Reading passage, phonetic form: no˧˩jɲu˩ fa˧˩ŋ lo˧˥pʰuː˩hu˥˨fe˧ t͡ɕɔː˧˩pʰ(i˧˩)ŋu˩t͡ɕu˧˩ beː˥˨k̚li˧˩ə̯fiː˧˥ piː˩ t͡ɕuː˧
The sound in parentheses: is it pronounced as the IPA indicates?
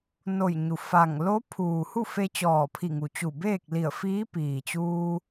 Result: yes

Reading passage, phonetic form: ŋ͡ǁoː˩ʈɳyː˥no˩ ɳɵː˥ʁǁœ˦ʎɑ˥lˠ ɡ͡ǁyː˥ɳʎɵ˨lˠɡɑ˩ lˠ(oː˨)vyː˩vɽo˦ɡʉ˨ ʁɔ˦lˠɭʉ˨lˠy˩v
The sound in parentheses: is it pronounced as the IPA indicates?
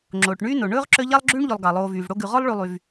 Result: yes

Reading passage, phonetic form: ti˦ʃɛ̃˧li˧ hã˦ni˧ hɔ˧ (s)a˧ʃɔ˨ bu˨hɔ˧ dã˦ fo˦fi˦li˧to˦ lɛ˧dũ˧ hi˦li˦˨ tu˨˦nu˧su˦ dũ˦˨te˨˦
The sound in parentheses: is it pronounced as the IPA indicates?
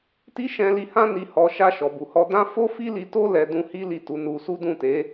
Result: no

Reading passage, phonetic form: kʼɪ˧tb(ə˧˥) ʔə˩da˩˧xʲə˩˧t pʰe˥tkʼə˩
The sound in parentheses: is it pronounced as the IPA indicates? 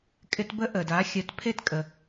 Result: yes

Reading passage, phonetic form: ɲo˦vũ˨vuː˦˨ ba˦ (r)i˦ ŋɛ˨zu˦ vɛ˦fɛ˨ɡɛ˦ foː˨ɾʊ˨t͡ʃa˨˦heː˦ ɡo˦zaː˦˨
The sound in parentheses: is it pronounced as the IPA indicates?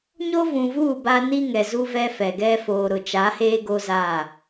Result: no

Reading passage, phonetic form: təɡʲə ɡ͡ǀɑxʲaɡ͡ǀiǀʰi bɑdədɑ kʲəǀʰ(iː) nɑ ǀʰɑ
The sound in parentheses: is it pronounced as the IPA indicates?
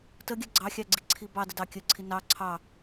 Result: no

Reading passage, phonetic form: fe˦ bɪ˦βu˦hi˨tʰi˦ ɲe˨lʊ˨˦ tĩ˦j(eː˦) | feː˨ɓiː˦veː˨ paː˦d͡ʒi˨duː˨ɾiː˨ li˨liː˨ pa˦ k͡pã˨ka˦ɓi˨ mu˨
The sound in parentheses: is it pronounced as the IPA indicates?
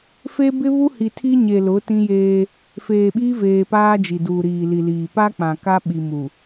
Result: yes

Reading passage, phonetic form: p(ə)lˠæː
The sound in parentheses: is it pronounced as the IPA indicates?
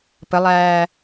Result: yes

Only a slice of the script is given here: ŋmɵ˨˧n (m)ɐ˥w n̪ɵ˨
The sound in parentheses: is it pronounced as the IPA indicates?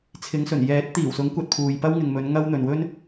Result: no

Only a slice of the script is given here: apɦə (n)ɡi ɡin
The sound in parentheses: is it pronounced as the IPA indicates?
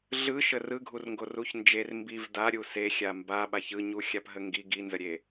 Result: no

